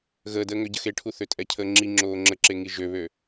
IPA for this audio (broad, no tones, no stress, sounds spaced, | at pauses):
ɣ əː d əː ŋ ø ɟ ə x e ʈʰ u θ ø tʼ ɛ cʰ əː ŋ͡ǁ i ŋ͡ǁ oː ŋ͡ǁ ə ǁ e ŋ i ʒ ø β ø